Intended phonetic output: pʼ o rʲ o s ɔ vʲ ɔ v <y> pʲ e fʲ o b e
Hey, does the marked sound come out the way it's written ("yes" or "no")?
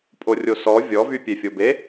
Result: yes